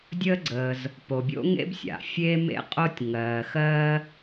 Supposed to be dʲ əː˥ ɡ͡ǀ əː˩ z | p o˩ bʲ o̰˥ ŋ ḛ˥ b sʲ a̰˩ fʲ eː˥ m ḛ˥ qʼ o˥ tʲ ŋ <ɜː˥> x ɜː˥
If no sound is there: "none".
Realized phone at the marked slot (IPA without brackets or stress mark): ɜː˩